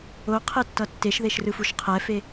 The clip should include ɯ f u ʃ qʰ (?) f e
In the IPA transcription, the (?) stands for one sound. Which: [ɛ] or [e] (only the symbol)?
ɛ